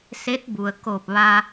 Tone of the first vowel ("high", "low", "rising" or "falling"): rising